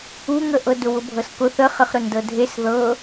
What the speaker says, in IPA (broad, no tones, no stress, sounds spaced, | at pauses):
u ŋ ə ʔ ɤ d ʊ w ʊ bʱ ɤ s k ʊ θ ə χ ə χ ɾ ʊ n d ɤ dʱ e s ð ɤ